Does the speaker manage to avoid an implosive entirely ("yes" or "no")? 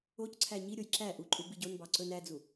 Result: yes